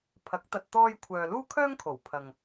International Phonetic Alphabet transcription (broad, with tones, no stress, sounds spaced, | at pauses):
pʰ ɐ˨˥ k̚ t̪ ɐ˧ t̚ t̪ ɔː˥ j kʷʰ œː˧ l uː˥ kʰ œː˥ ŋ kʰ o˨˩ w pʰ ɐ˨ ŋ